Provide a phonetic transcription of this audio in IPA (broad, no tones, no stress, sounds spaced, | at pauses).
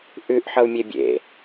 ʔ ʉ ʔ ħ ʌ u̯ mʲ e bʲ ḛ